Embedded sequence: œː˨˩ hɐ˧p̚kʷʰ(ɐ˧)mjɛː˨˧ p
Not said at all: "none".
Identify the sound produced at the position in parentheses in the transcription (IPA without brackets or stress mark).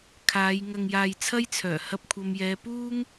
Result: ɐ˨